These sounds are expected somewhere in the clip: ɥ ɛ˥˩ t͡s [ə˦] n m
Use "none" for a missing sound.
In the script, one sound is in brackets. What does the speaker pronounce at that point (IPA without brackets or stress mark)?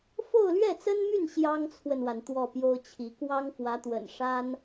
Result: ə˥